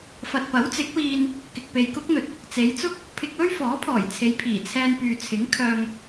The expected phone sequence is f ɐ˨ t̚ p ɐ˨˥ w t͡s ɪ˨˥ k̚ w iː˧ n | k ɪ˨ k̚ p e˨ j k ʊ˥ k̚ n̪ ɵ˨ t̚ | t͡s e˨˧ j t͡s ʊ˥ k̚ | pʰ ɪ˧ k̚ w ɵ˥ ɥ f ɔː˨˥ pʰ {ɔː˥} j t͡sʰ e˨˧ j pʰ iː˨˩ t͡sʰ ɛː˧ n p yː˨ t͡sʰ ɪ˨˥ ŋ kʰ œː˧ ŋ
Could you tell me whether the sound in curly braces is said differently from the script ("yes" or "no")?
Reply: yes